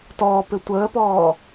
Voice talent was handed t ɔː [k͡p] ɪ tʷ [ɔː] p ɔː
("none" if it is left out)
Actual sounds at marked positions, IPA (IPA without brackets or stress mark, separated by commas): p, əː